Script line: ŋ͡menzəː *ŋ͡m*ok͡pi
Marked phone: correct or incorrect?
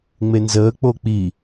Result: incorrect: k͡p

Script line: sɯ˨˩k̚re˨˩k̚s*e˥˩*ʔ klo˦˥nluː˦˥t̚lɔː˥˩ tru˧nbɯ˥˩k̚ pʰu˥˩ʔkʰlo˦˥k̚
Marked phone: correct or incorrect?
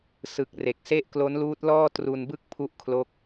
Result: correct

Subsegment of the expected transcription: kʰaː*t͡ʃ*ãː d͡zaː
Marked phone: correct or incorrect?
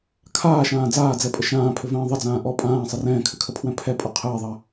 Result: incorrect: ʃ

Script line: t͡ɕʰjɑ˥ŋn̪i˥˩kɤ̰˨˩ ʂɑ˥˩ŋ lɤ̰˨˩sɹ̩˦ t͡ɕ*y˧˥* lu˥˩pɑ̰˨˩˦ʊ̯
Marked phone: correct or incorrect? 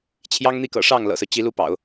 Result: incorrect: i˧˥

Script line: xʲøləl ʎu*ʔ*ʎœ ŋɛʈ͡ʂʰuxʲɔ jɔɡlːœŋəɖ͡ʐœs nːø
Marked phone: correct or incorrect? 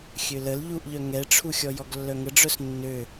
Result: correct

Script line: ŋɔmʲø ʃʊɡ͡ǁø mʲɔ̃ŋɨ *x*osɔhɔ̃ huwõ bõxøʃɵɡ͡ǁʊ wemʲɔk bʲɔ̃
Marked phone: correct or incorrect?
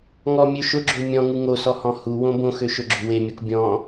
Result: incorrect: ŋ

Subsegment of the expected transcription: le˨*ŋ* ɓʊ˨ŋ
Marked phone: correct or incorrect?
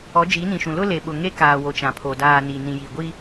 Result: incorrect: none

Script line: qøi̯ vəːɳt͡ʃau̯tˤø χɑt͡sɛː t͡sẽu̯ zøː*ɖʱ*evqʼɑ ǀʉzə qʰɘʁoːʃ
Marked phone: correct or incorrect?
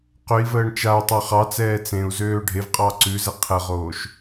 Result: correct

